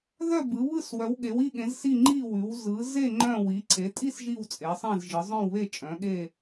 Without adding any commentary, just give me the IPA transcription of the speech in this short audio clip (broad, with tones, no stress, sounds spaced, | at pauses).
ð œ˦˨ b ɯ˩˧ β ɯ˦˨ s w œ˩˧ w ɠ e˩˧ w i˦˨ ɠ ẽ˩˧ z s i˦˨ ŋ͡ǃ i˦˨ w ʉ˩˧ w z ɯ˩˧ z e˦˨ ŋ͡ǃ œ̃˦˨ w i˩˧ ǀʰ e˩˧ tʼ i˦˨ s ʒ i˦˨ w t͡sʼ e˩˧ sˤ ẽ˦˨ z ʒ ɯ˩˧ zˤ œ̃˦˨ w β e˦˨ t͡ʃʼ œ̃˩˧ ɠ e˦˨